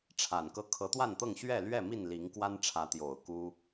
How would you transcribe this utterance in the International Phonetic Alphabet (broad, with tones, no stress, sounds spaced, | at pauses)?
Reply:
ʈ͡ʂʰ a˨˩ n k ɤ˦ kʰ ɤ˨˦ t̪ w a˥˨ n t̪ ɤ˥˨ ŋ ɕ ɥ ɛ˥˨ l ɥ ɛ˥˨ m i˥˨ n l i˨˦ ŋ k w a˦ n ʈ͡ʂʰ ä˨˦ t̪ j o˨˩ ʊ̯ k u˦